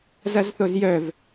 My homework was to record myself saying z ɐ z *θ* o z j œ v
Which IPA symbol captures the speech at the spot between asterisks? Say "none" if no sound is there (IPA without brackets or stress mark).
θ